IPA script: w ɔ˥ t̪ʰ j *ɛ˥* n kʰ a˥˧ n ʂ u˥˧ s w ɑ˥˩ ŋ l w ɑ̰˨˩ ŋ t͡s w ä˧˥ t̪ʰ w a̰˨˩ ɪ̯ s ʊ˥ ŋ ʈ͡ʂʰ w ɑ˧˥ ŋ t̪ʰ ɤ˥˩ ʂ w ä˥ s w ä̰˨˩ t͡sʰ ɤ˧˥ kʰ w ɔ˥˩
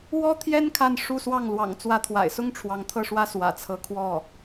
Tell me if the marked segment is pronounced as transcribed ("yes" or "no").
yes